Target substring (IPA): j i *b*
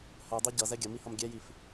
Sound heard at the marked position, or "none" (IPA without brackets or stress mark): f